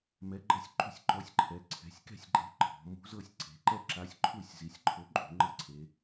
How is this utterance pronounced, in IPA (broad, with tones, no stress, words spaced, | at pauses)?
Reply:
mɛ˨˥ɡ͡ǃɤ˥˨sʲǃṳ˥˨sʲ ǃɔ˨˥sʲǃʰɛ˩˧ ǀʰɛ̤˩˧sʲkɛ̤˥˨sʲ ɡ͡ǃe̤˨˥ ǃʰɔ̤˩˧ mṳ˨˥zɤ˥˨sʲǀe̤˩˧ ǃɛ˥˨ǁa˨˥sʲǃʰu˥˨sʲ zi˩˧sʲǃʰo˨˥ ǃʼṳ˩˧ŋ͡ǃɤ˥˨ǀʰe˩˧